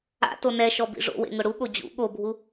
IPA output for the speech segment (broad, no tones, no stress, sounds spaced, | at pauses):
a̰ t o n ɛ ʃ ɔ b ḭ ʐ o̰ w ḛ ŋ ʊ ɽ u ɠ o d͡ʑ ṵ ɠ o bʱ u